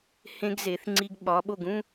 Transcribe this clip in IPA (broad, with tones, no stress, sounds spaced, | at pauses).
h ẽ˧ ɡ z e˩˧ θ ŋ͡ǀ i˧ ɡ ɓ ɒ˩˧ ɓ o˧˩ ɡ ũ˥˧